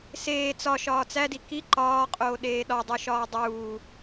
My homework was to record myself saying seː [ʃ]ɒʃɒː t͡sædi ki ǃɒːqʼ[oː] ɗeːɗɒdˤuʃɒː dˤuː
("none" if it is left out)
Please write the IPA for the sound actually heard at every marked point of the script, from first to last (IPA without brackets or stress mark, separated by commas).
t͡s, oː